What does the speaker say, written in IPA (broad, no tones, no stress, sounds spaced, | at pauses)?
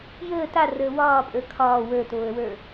j əː t a r əː w ɒː pʼ ə˞ kʰ ɒː w ə˞ t oː ə̯ w ə˞